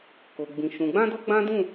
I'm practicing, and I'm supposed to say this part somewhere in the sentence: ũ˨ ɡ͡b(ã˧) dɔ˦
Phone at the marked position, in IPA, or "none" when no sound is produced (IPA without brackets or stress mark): ã˧